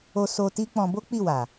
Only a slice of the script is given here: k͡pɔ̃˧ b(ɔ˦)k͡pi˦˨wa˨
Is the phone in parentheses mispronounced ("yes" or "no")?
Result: yes